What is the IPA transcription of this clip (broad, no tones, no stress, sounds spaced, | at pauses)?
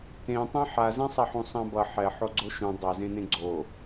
t ẽ tˤ ẽ ħ a z ɛ̃ sˤ a ħ ũ sˤ ã b ʌ ħ ɛ ħ o ɡ͡ǀ o ʃ ũ dˤ a z ẽ n ẽ ɡ͡ǀ o